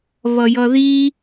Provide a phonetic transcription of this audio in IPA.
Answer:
βʌjʌði

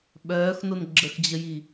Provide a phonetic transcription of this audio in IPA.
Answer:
ɓœːxnon ɡ͡ǁəxd͡ʑəji

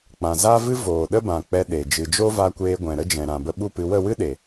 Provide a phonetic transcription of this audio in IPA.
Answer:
k͡pã˨za˦vɨ˦ voː˨ ɗə˦bã˨k͡pɛ˧ ɗe˨ d͡ʒɨ˨d͡ʒo˦va˧kʷeː˧ ɡʷɛ̃˨ɾə˦d͡ʒɛ̃˨ ɾã˨bə˧ ɓu˦˨pɨ˧ wə˦˨wɨ˦ ɗe˨

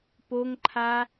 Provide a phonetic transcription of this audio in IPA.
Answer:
poŋǃʰa

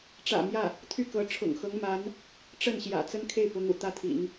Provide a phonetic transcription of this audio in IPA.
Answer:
ʈ͡ʂä̰˨˩ mjä˥˩ | t̪ʰy˥˩kɤ˧˥ ʈ͡ʂʰʊ̰˨˩ŋxɤ˧˥ŋma˧˥n | ʈ͡ʂə˥˩nɕjä̰˨˩ t͡sə˥nkʰe˥˩ɪ̯pʊ˧˥ŋṵ˨˩ t̪ä˥t̪ʰḭ˨˩˦ŋ

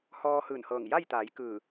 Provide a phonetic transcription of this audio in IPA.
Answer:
hɔː˧hɯː˧˩nhɤː˧˩ŋ ja˥˨jt̪a˩˧j kɯː˧˩

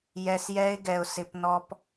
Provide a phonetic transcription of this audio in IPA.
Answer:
jɛ˧sjɛ˦ɪ̯ɡɛ˧ʊ̯ sɪ˧pnɔ˦p

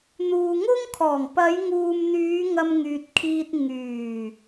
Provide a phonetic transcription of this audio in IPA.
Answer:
n̪uː˨ŋʊ˥ŋkʰɔː˨˩ŋ pɐ˨˧jŋuː˨mn̪yː˨˧ ŋɐ˧mŋyː˨t̚kʰiː˧t̚ ŋyː˨˩

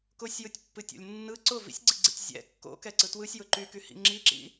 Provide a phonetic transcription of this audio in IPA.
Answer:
kʊsʲjɯtʲpːɨtʲo̰lʲ nːɯ ǀʊ vḭsʲɡ͡ǀiɡ͡ǀḭtʲ zʲɛ̰ kːo̰kɛǀɯ twɯsʲjʊ ǃykyhḭ ŋ͡ǁiǁḭ

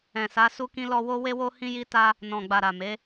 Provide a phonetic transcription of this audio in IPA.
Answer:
ɛ̃˨sa˨˦ su˦kĩ˦lɔ˦ wo˦ we˦wo˦hĩ˦ji˦ ta˦ | nɔ̃˨ɡ͡ba˨ɾa˨ me˨˦

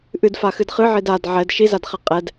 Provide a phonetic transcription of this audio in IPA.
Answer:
ʔɨdfaxɨd χɨʕid ad ʕɛd ʃizadχɛ qʼɛd

